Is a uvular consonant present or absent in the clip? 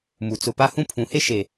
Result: absent